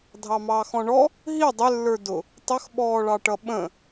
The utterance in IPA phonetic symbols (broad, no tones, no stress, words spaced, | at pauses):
dʱɑmɑːxɔ̃ɳɔ | ɦi dˤɪlːə˞ dʊ | tˤəxɓɔːɭɑʈʌ ɓə̃